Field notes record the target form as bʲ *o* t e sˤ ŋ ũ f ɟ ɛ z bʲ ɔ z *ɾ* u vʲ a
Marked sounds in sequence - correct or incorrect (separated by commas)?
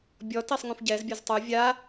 incorrect, incorrect